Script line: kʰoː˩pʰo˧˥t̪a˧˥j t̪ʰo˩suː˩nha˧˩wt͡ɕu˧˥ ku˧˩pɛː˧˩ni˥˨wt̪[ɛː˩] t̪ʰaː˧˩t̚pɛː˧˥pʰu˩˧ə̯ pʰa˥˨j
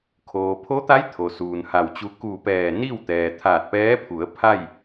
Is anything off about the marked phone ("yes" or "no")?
no